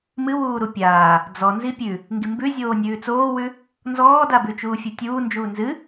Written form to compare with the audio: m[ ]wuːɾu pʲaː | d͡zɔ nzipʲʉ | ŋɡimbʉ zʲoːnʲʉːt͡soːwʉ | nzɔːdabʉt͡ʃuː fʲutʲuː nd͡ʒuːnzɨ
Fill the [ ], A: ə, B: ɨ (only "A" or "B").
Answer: B